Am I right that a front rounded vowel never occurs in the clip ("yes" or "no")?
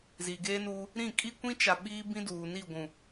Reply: yes